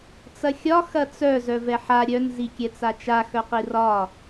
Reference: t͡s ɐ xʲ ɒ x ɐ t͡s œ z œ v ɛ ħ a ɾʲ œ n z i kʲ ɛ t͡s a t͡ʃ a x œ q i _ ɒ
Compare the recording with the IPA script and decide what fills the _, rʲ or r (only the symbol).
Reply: r